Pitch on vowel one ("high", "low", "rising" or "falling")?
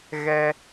high